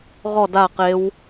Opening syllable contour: falling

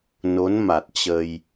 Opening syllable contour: rising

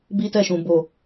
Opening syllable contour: high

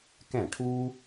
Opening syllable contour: falling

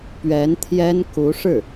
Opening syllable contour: rising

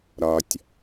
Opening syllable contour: low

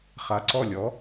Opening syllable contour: low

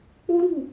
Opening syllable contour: high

